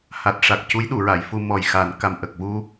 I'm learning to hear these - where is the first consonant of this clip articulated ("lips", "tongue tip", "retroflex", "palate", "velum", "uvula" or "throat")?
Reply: throat